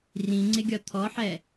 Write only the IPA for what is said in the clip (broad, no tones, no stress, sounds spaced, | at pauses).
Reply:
r ĩ ŋ͡ǀ ɪ ɡʲ ɒ t̪ʰ ɔ ħ ɛ